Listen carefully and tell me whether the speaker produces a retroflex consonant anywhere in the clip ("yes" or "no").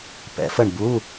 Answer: yes